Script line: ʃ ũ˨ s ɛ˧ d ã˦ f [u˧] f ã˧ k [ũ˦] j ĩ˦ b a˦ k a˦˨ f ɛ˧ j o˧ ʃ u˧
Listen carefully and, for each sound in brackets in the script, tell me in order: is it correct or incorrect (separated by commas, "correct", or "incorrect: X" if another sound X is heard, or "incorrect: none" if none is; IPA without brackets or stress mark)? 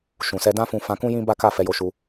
incorrect: ũ˧, correct